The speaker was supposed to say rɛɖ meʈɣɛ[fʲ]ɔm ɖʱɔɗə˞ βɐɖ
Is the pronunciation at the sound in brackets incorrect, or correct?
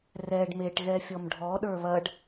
correct